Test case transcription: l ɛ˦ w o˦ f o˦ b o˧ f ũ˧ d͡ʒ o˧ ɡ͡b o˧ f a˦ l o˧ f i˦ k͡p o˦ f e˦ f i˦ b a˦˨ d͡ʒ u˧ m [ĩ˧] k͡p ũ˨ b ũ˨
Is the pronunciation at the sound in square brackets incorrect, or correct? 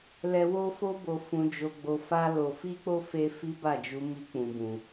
incorrect